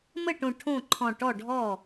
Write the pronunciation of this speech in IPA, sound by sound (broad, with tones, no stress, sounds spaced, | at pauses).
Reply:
m ə˥˩ ʈ õ˧˩ ʈʰ õ˥˩ ǃʰ ɔ̃˧˩ ʈ ɔ˥˩ ɖʱ ɔ˥˩